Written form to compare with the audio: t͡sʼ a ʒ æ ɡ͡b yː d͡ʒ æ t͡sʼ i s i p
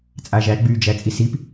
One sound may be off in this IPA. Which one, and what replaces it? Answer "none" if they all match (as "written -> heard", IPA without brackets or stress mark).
none